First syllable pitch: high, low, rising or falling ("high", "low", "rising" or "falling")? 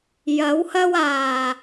rising